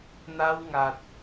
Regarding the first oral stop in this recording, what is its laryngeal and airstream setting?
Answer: plain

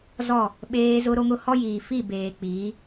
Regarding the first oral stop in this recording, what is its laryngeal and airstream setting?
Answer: implosive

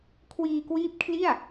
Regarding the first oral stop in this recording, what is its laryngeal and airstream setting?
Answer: aspirated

